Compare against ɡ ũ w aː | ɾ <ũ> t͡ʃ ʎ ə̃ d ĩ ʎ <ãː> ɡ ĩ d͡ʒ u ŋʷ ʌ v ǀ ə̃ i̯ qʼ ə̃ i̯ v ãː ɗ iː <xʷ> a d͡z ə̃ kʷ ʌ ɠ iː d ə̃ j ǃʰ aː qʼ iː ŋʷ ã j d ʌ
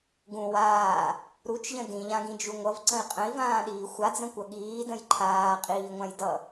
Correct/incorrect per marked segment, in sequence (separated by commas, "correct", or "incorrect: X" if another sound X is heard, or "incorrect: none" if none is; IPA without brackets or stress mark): incorrect: u, incorrect: ã, correct